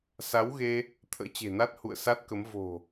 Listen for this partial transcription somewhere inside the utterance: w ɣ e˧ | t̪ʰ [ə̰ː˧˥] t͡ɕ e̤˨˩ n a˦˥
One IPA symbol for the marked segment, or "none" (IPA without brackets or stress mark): ə̰ː˧˥